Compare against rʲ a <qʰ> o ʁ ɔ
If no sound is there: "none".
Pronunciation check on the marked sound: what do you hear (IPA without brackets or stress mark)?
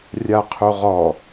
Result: qʰ